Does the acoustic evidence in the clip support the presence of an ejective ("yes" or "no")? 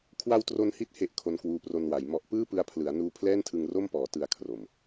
no